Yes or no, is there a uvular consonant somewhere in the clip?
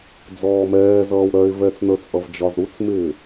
no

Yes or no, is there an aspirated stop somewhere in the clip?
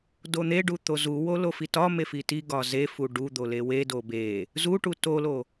no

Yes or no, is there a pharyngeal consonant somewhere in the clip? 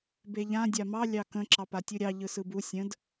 no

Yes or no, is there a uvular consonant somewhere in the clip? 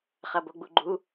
yes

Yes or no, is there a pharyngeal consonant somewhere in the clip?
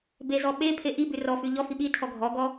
no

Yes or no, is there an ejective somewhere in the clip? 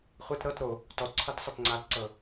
no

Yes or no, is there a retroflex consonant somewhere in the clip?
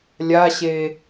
no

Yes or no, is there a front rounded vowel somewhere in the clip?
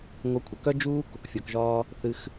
yes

